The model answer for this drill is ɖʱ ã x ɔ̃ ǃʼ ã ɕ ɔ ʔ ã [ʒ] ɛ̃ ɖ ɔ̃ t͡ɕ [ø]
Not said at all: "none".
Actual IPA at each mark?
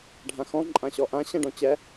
ɕ, ɛ

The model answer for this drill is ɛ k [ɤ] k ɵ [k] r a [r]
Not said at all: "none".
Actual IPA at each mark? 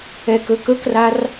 ɵ, k, r

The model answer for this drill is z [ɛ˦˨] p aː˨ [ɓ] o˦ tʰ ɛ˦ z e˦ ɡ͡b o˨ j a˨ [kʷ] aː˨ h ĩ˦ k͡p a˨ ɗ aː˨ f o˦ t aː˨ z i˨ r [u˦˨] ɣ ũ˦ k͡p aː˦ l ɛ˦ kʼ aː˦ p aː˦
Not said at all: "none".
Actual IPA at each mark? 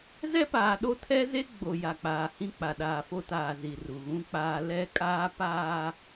ɛ˦, ɗ, k͡p, u˨

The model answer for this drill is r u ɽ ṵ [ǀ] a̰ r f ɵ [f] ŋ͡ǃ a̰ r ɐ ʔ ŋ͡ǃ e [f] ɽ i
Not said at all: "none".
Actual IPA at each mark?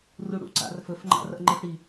ǀ, f, f

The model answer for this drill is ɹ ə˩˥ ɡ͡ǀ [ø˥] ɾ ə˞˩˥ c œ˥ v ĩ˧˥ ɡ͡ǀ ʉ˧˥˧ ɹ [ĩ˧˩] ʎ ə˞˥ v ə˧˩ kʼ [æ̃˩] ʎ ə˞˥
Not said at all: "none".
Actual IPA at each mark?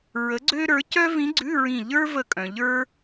ø˥, ĩ˧˩, œ̃˩

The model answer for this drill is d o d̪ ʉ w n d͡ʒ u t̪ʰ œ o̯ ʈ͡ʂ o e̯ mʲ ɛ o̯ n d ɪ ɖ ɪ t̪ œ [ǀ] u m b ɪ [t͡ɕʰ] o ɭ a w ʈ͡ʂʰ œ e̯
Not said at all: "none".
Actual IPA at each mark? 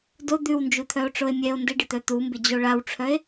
t̪, d͡ʑ

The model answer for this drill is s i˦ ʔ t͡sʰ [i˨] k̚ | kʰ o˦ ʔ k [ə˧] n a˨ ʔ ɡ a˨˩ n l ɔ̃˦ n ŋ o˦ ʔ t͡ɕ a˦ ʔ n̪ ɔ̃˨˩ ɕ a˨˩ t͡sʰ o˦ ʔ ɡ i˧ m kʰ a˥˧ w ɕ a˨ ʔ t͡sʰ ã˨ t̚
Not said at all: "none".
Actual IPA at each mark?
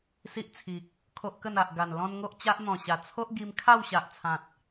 i˨, ə˥˧

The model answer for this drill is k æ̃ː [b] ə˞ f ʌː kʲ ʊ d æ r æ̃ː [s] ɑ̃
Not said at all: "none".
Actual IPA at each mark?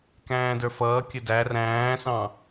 d, s

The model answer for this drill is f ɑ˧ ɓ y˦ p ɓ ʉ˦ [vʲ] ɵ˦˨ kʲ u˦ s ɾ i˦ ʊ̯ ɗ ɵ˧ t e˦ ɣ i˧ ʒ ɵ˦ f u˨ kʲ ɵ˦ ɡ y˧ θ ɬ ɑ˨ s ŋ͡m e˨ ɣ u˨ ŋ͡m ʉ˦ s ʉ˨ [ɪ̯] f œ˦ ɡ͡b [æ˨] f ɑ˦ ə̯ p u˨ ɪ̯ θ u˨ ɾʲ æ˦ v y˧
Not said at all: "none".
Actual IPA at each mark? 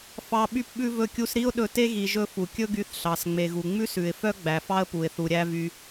v, ɪ̯, æ˨

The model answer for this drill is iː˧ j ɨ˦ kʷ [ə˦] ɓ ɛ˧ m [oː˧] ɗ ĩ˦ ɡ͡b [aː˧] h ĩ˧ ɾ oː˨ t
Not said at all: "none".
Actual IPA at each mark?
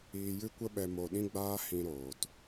ə˦, o˧, aː˦

